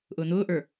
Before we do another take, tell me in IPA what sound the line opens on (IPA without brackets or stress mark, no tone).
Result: ʔ